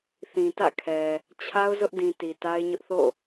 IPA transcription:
θ ĩ˨ t ä̰˦˨ kʰ ɛ˨ | t͡ɕʰ a˦ ʊ̯ z ʊ˦ ʔ d ĩ˨ t i˨ t a˦ ɪ̯ ɲ ʊ˦ ʔ θ o̰˦˨

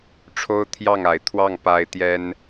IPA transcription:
ʈ͡ʂʰ o˥ ʊ̯ t̪ʰ j ɑ˥˩ ŋ a˧˥ ɪ̯ t̪ʰ w ɑ˥˩ ŋ p a˥ ɪ̯ t̪ j ɛ˥ n

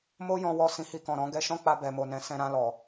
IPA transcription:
m o˦ j ɔ̃˧ w ɔ˧ s ĩ˧ h i˧ k ɔ̃˨ ɾ ɔ̃˨˦ ɡ ɛ˧ ʃ ɔ̃˦ k͡p a˧ b ɛ˨ m o˨ n ɛ̃˨˦ s ɛ̃˧ ɾ ã˧ l ɔ˨

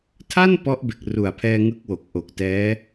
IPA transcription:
tʰ a˥˩ n p ɔ˦˥ ʔ b e˨˩ k̚ r u˨˩ a̯ pʰ ɛː˧ ŋ ɯ˦˥ k̚ w o˨˩ k̚ ʔ o˨˩ k̚ t ɛː˦˥

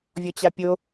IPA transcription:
vʲ ɔ t͡ɕ a pʲ o

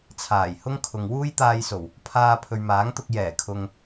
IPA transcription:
t͡sʰ aː˨˩ j h ʊ˥ ŋ kʰ ʊ˨ ŋ w uː˥ j t̪ aː˧ j s o˨˩ w | pʰ aː˧ pʰ ɵ˨ ɥ m aː˨˥ ŋ t̪ ʊ˧ k̚ j ɛː˨˩ kʰ ʊ˨ ŋ

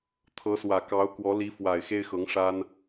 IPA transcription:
t̪ʰ ɤ˧˥ s w ä˨˩ k ɑ˧˥ ʊ̯ k w ɔ˧˥ l i˧˥ f w a˨˩ ɪ̯ x e˥ ɪ̯ x ɤ˧˥ ŋ ʂ a˥ n

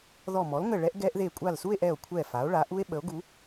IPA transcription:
ð ɔ˧˩ m ɔ˩˥ l ŋ ə˧˩ ɭ ɛ˦˥ ʔ ɡ ɛ˦˥ ʔ ð e˧˩ kʷʼ a˧˩ l s u˥˧ e̯ ʔ ɛ˧˩ o̯ kʷʰ ɛ˧˩ f a˩˥ o̯ ɭ a˩˥ ʔ u˦˥ e̯ ɓ ə˩˥ o̯ ɡ u˩˥

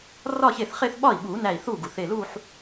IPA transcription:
r ɒː˥˧ ç e˥˩ θ χ e˥˧ θ ɓ ɒ˥˩ i̯ ɓ uː˨˩˦ n æ˧˩ i̯ θ uː˥˩ ɡ u˩ θ e˧˩ l uː˥˧ ħ

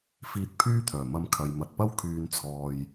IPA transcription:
f iː˧ t̚ pʰ yː˥ t̪ʰ œː˨˩ m ɐ˨˧ m kʰ ɐ˨ j m ɐ˨ t̚ p ɐ˥ w kʰ yː˨ n t͡sʰ ɔː˨ j

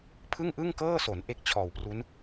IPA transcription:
pʰ ɯ˥˩ ŋ ʔ ɯ˥˩ ŋ k ɤː˥˩ s o˩˦ n ʔ e˦˥ k̚ t͡ɕʰ ɔː˨˩ w p r u˦˥ n

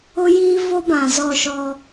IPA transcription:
ʊ˦ j iː˦ v o˦ b ã˨ z ɔ˦˨ ʃ ɔ˦

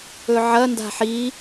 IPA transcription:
ɵ ʕ ɐ n d a̤ ħ i

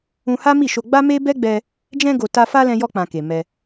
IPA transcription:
ũ˧ h a˦ m i˦˨ ʃ o˧ ɡ͡b a˦ m e˦ b ɛ˦ ɡ͡b ɛ˧ | d͡ʒ ɛ̃˧ ɡ o˨ t a˧ f a˦ l ɛ̃˧ j ɔ˧ k͡p ã˨ k e˨ m ɛ˧

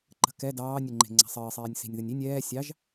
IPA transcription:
ǃ ə̤ k ɛ d ɑː nʲ ə ŋ͡ǃ e̤ ŋ͡ǀ a̤ sˤ ɘː sˤ ɛː nʲ s i̤ nʲ ð ə nʲ i nʲ ɛː sʲ ɑ ʒ

